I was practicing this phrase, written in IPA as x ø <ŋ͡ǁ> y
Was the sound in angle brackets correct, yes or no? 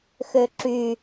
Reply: no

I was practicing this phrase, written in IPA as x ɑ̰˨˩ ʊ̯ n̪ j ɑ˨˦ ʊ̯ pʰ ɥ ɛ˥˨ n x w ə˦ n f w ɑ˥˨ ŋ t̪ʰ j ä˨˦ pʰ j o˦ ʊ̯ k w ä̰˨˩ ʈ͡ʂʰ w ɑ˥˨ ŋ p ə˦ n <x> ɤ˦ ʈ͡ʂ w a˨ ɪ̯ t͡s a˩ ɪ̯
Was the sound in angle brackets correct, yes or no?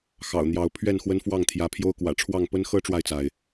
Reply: yes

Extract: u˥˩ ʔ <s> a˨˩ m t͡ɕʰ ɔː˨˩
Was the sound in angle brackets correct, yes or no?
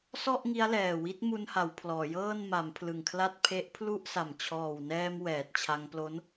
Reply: yes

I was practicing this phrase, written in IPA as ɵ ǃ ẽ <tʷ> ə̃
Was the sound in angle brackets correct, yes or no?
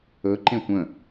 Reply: yes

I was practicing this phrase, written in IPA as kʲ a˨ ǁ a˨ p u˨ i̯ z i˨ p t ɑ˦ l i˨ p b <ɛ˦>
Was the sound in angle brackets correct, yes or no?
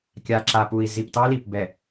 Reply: no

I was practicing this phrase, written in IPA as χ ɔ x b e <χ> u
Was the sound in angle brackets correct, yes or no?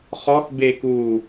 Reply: no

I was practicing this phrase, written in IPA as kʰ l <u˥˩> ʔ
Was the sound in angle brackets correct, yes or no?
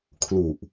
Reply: no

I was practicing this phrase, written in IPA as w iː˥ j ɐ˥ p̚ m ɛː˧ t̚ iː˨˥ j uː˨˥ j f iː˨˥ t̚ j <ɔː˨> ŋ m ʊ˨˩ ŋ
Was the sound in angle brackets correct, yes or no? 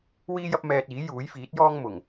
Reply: no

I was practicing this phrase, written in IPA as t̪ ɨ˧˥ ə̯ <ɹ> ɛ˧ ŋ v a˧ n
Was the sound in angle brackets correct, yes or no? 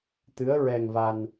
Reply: yes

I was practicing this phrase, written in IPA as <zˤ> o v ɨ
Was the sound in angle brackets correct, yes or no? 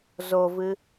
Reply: no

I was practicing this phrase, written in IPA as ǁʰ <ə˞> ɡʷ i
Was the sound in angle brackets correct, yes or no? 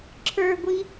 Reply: yes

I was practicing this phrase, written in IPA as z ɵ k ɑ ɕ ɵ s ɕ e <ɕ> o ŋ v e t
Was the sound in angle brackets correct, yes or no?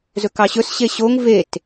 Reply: yes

